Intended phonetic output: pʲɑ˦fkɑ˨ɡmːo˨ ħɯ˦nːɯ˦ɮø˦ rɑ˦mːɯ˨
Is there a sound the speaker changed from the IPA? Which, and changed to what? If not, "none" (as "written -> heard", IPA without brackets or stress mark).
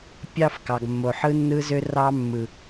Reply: ɮ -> z